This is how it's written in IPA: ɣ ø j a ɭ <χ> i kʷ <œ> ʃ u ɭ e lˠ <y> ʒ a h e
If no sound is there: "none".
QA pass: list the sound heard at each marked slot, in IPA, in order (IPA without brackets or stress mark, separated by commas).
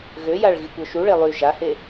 ɣ, œ, y